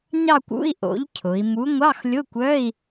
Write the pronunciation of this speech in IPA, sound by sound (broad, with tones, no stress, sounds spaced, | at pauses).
ɲ ɑ˥˧ kʷ ṵ˧˥˧ i̯ ʔ o̰˨˥ ʎ cʰ ʊ˩˧ i̯ m u˨˥ ŋʷ ɑ˧˥˧ x lʲ ʊ˧˥˧ kʷ œ˧˥˧ i̯